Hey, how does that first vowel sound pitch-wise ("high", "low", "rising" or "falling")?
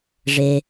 low